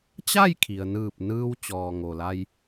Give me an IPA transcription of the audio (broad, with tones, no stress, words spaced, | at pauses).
t͡ɕa˥˨jkʰi˩ə̯nɯː˧˩p̚ nɯː˧w t͡ɕɔː˩ŋo˩la˧j